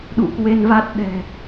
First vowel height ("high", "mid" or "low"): high